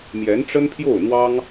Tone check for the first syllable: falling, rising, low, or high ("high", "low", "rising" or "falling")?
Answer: rising